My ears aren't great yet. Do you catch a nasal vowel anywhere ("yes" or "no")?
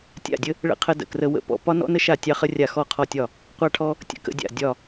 no